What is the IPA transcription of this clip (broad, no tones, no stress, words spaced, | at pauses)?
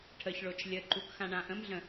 ʈʰəçɭot͡ʃ lʲəǃuk xãɳãʔə̃mɮə̃